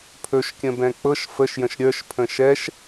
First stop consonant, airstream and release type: aspirated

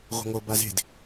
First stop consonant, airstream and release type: plain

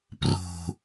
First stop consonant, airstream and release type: plain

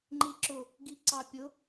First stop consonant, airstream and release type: click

